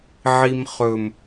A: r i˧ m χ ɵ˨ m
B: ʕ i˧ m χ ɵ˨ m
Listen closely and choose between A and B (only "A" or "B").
B